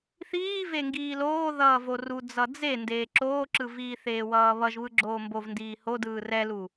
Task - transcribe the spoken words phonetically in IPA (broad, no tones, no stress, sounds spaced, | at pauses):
θ iː v e ŋ ɡ iː l oː ð ʌː v o r u d͡z ʌ d͡z e n d eː ǁ oː ǁ ɯ v iː θ eː w ʌː β ʌ ʒ β ɯ ɡ͡ǁ oː m b o v n d iː h o d ɯː r ɛ l u